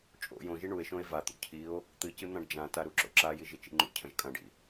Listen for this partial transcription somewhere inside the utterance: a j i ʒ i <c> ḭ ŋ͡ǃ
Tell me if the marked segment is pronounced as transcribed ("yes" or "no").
no